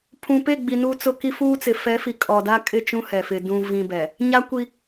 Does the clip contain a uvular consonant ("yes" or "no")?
no